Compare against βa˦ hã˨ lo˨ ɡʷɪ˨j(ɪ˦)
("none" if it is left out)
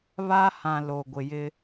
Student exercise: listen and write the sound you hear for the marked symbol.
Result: ɪ˦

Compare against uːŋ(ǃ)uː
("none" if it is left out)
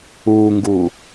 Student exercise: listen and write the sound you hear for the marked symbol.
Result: ɡ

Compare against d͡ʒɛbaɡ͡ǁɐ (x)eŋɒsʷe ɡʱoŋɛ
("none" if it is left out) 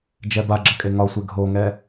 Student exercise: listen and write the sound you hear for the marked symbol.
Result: kʼ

